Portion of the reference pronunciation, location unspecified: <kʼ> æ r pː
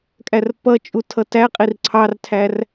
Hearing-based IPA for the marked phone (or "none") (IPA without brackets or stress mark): kʼ